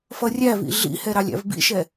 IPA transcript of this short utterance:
f ʌ rʲ æ v ḭ ɮ ḭ h ɛ ɾ ɑ lʲ æ̰ v b ḭ ʃ ɛ

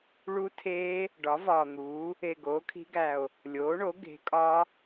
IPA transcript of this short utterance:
ɭ u˦˥ tʰ eː˦˥ | ɖ ɒ˩˥ v ɒː˨˩ n̪ uː˩˥ | e˨˩ ɡ oː˩˥ kʰ i̤˦˥ ɡ æ˨˩ o̯ | lʲ oː˩˥ ɳ o˩˥ ɡ e̤˩˥ kʼ ɒ˦˥

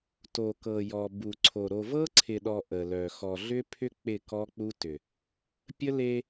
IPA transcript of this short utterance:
t o˨ k ɤ˨ j ɔ˨ b u˨ ǀʰ o˨ ɾ o˨ v ɤ˦ ǀʰ ɪ˨ ɗ ɔ˨ ʔ ə˨ l œ˨ x ɔ˨ ɮ ʏ˦ pʰ ʏ˦ k͡p ɪ˦˨ k ɔ˦ k͡p u˦ t ʏ˨ | pʲ ə˦ l e˦

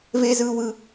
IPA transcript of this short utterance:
v e˦ z ɯ˦ w ɯ˦

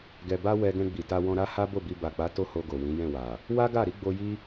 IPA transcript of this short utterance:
ɡ ɛ˨ b a˧ w ɛ˧ ɡ ɛ̃˧ ɡ͡b i˨ t a˧ w ɔ̃˧ ɾ a˦ h a˦ b o˦˨ b i˧ b a˨ k͡p a˨˦ t o˦ h o˧ ɡ o˨ w ĩ˨˦ j ɛ̃˦˨ w a˨ | w a˦ ɡ a˦˨ ɾ i˨˦ ɡ͡b o˧ j i˦

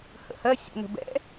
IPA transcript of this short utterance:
h ə̰ h ɜ sʲ ɛ̰ n ə̤ b ɛ̰

